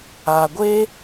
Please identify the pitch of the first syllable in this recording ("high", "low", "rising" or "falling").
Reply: low